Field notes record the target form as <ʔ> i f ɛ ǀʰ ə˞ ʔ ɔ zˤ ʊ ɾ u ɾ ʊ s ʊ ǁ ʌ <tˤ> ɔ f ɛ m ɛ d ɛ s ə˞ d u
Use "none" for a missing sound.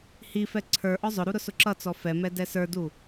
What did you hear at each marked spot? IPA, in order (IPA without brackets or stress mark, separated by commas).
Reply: h, t͡s